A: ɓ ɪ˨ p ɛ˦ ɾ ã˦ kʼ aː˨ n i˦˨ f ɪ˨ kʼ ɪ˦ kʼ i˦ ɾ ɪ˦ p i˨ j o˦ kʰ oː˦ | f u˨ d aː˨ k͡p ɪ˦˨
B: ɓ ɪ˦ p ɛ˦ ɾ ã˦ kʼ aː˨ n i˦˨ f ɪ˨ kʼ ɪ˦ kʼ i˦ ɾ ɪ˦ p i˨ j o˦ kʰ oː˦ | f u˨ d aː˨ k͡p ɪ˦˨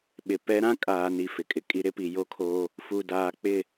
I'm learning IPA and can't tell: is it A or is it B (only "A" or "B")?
A